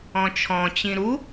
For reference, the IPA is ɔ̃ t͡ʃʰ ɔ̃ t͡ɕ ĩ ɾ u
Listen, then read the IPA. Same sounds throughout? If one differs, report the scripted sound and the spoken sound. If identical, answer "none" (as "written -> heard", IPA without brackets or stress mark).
none